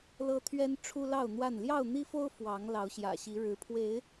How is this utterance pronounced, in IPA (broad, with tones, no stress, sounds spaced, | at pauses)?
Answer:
l ɤ˦ t̪ʰ ɥ ɛ˦ n ʈ͡ʂʰ u˦ l ɑ˥˨ ʊ̯ n̪ w a˥˨ n l j ɑ˥˨ ʊ̯ n̪ i˦ f o˦ ʊ̯ f w ɑ˨˦ ŋ l ɑ˨˦ ʊ̯ ɕ j ä̰˨˩ ɕ i˨˦ ɻ ɻ̩˨˦ pʰ w e˨˦ ɪ̯